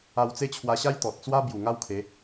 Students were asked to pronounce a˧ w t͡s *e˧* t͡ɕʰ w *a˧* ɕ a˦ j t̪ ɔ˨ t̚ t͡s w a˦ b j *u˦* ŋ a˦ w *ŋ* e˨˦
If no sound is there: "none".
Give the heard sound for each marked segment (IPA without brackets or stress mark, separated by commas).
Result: e˦, a˧, u˨˩, kʰ